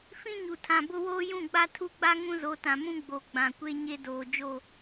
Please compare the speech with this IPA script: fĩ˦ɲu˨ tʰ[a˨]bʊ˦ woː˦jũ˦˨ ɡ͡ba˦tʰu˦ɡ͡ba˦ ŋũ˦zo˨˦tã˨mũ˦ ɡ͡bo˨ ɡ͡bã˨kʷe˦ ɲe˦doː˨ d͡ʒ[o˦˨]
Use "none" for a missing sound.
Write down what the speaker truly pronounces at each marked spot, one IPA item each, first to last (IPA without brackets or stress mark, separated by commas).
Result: ã˨, o˦˨